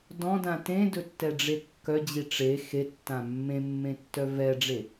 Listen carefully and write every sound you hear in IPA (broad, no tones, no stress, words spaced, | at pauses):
dɔ̃dã tẽdɵtːɛɖ͡ʐe kːœd͡ʑi ʈ͡ʂe xetːã mːẽmːẽtːœ vɛɖ͡ʐe